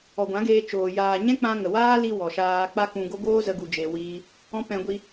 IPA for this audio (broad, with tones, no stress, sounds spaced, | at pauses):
ɔ˨ ɡʷ ã˨˦ ɡ eː˧ t͡ʃ oː˨ j aː˨ ɲ ɛ̃˦ k͡p ã˧ ŋ ə˨ w aː˦ l i˧ w ɔ˨ ʃ aː˧ k͡p a˦ k ũ˧ ɡ o˦ ɡ oː˦ z ə˧ ɡ u˧ d͡ʒ e˧ w iː˦ | ɔ̃˦ p ɛ̃˧ ɡʷ i˧